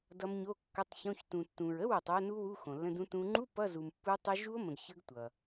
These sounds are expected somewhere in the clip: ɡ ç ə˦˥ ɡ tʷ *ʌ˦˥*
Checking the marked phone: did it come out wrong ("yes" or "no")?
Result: yes